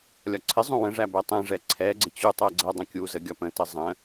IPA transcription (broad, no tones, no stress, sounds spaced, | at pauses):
lʲ ɒ ǀʰ ɪ zˤ ũ w ə̃ ʐ æ b ɛ tˤ ɛ̃ ʐ ɛ ǀʰ ɛ ɡ͡ǀ ɪ t͡ɕ u tˤ ɜ ɡ͡ǀ ɜ dˤ ə̃ kʲ u z ə ɡʲ ɒ p ə̃ t ə zˤ ə̃